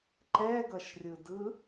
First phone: ǃ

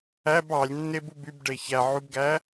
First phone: æ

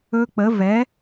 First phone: ɵ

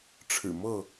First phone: ʈ͡ʂʰ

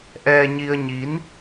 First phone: ʔ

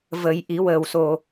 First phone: v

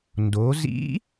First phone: n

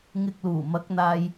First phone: ŋ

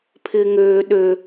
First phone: pʰ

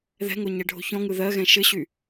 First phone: ð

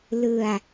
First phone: l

